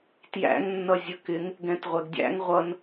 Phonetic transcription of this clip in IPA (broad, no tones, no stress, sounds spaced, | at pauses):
t j æ̰ ŋ nː ʌ zʲ ə k ɪ ŋ | ɡ ɛ̃ t ʁʷ ɛ ɡ dʲ æ̰ ŋ ʁʷ ʌ n